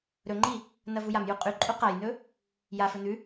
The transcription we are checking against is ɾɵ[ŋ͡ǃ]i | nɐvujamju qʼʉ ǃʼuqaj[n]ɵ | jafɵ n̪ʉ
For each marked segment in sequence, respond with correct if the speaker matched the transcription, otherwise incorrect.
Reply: correct, correct

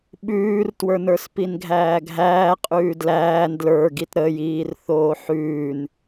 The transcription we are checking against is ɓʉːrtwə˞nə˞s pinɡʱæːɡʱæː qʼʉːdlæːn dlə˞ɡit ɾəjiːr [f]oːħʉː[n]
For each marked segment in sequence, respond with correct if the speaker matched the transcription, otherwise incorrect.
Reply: incorrect, correct

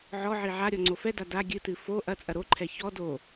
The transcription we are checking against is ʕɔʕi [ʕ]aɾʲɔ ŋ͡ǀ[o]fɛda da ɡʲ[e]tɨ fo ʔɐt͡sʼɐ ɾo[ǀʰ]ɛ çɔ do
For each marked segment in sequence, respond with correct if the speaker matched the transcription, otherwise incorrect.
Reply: correct, correct, incorrect, incorrect

